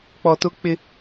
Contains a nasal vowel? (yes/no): no